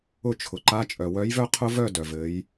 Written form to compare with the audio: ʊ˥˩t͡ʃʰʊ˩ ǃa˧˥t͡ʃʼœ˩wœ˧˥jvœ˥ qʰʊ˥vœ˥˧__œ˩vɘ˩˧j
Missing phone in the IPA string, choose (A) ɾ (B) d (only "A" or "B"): B